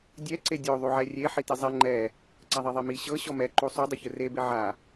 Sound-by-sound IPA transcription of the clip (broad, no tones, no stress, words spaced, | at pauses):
dʲɛ ǀedʲo ðˤuʕɛrʲe ħitizˤɛ ŋ͡ǃɛ | ǀaðˤɛðˤemi ɕɤ ɕɔmɛ ǃusˤu dˤoçɯre beʕa